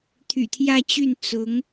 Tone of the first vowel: low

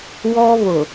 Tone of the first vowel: high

